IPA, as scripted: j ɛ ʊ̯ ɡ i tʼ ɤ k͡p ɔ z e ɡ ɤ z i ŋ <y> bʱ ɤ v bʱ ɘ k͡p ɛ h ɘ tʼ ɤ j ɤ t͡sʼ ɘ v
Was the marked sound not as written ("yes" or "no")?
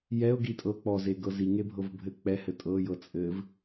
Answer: yes